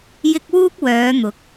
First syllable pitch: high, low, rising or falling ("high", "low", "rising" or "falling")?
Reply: high